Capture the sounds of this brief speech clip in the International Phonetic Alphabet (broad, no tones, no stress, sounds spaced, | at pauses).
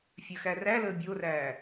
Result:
fʲ œ x æ r æ l əː bʲ o r æː